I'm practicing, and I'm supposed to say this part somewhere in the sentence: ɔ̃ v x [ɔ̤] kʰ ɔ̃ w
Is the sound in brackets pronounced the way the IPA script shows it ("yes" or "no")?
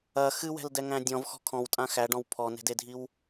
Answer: yes